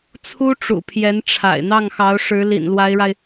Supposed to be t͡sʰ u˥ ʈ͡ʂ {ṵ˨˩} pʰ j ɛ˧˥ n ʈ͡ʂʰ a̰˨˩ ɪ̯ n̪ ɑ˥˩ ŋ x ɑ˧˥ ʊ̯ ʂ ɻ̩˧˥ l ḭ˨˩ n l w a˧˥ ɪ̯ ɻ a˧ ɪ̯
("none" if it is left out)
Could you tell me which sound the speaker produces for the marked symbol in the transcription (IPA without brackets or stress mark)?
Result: ṵ˨˩